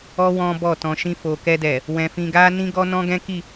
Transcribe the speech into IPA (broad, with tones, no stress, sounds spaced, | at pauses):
ɔ˦ w ɔ̃˦ b ɔ˦˨ t ɔ̃˧ ʃ ĩ˧ f o˨ k ɛ˧ d ɛ˨ | w ɛ̃˧ f ĩ˧ ɡ a˦ n ĩ˦ ɡ ɔ˦ n ɔ̃˦ ɡ ɛ̃˦ k i˦˨